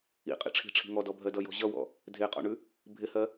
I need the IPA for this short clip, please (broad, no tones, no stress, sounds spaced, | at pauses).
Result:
ḭ qʼ ḭ ʈ͡ʂʰ i̤ ʈ͡ʂʰ i̤ ŋ ɔ d ɔ bʱ ɜ d ʌ j ɔ̤ ʑ ʌ w ɔ̰ | dʱ e qʼ ɔ̰ ɳ ʉ | bʱ ɪ h ɜ